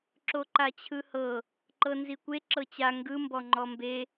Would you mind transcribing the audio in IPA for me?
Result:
ǁ o ǃ a t͡ɕʰ ɯ h ɤ | ǃ ɤ n z i kʷ e ǁ ɤ t͡ɕ a ŋ ɡ ɯ m b ɔ ŋ͡ǃ ɔ m b e

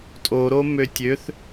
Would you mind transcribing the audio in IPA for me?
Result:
tʼ o ɾ o m ø tʲ ø θ

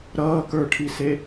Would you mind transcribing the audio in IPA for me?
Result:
ɾ ʌː k ə˞ ʈʰ i s e

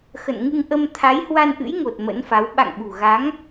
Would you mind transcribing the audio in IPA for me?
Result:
x ə̰˧˨ n ŋ ɨ˧ ŋ ʔ ə˧ m t̪ʰ a˨˦ j h w a˧ n ʔ ɨ̰˧˥ j ŋ o˨˩ t̚ m ə̰˧˥ n f a˨˦ w ɓ a̰˧˨ ŋ ɓ ṳ˨˩ ɣ a˨˦ ŋ

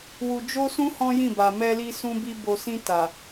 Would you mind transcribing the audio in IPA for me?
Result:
w u˧ d͡ʒ o˦ s ũ˦ h ɔ̃˦ j ĩ˦˨ b a˨ m ɛ˧ l i˧ s ũ˧ b i˧ b o˨ s ĩ˧ t a˨

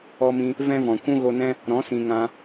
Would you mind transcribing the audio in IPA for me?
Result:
ɔ˧ m ĩ˧ | v ɛ̃˦ v ɔ̃˨ kʷ ũ˦ ɣ o˧ n ɛ̃˦ | ɾ ɔ̃˨˦ s ĩ˨ ŋ ã˧

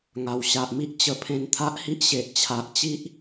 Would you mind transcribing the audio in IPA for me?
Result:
ŋ a˨˩ w ɕ a˨ ʔ m i˦ ʔ t͡ɕ ə˧ pʰ ẽ˧ n t̪ʰ a˦ ʔ h i˦ ʔ ɕ e˨ ʔ t͡ɕʰ a˨ ʔ t͡ɕ i˦ ʔ

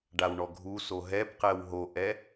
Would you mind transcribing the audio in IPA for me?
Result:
ɖ a w ɳ ɔ ɡʱ u s o ɦ ɛ b q ɛ w ɦ o ʔ ɛ

